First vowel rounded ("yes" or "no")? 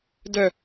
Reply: yes